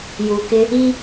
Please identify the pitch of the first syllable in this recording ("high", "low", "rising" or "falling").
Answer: low